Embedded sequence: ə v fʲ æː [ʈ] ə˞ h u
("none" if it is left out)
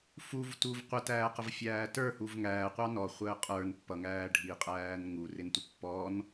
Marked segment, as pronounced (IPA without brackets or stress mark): t